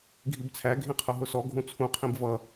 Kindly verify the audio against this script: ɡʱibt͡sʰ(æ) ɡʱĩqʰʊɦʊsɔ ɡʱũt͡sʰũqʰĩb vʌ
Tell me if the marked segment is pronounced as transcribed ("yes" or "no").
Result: yes